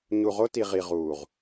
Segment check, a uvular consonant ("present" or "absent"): present